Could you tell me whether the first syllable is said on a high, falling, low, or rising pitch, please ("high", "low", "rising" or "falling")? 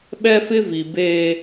high